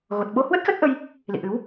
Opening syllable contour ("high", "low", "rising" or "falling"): low